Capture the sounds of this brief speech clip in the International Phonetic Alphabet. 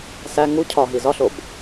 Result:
s æ ŋ u cʰ ɒ ɦ i z ɒ ɬ o b

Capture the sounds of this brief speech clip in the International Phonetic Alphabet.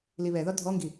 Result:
l i β ɛ ð ɒ dʱ ɔ ŋ ɡ i

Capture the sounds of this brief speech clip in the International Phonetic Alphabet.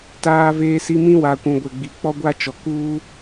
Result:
t aː˨ v eː˨ s i˨ m ĩ˦ w a˨ kʷ ũ˨ ɡʷ ɛ˨ ɡ͡b i˨ k͡p ɔ˦ ɡʷ a˦ t͡ʃ ɔ˨ k uː˦

